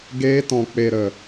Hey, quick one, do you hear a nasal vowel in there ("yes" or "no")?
yes